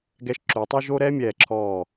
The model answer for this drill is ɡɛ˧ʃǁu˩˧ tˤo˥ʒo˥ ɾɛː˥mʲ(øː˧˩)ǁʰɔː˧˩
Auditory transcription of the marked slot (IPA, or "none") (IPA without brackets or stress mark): ɛː˧˩